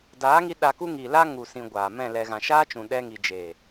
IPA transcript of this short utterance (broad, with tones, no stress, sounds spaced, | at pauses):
d aː˨˦ ŋ i˧ ɗ a˧ k u˦ ŋ iː˨ l a˦ ŋ u˧ s ĩ˧ ɡʷ aː˨ m ɛ̃˦˨ l ɛ˨ ɣ ã˨ ʃ aː˦ t͡ʃ ũ˨ ɗ ɛ˧ ŋ i˨ d͡ʒ eː˨